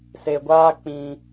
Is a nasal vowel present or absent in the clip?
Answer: present